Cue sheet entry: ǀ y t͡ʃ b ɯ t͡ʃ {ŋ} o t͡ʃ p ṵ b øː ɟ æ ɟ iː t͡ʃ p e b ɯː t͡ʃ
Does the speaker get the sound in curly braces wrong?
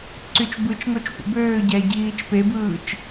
no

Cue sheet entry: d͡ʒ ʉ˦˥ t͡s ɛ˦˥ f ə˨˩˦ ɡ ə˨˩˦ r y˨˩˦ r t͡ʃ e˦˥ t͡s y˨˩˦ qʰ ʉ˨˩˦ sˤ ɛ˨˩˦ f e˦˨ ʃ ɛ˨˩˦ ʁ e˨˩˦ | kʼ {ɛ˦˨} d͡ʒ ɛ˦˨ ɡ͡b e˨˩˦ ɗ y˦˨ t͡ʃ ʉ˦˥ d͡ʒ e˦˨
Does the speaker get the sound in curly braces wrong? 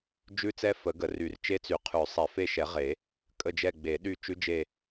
yes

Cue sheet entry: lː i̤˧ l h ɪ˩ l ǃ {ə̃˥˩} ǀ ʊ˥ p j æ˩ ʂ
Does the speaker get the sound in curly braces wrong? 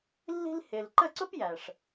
yes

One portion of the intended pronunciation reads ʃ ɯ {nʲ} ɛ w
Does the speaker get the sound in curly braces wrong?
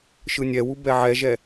no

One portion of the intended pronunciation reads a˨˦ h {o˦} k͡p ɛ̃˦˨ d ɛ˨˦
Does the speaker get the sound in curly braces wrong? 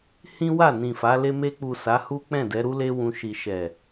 yes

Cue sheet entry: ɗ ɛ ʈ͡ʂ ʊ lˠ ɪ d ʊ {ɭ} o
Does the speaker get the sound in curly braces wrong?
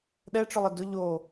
yes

